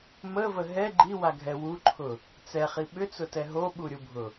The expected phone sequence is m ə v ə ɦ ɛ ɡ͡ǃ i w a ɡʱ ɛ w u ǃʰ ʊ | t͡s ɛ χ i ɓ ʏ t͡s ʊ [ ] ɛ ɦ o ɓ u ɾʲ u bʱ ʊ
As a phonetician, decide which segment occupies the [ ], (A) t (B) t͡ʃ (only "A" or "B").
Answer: A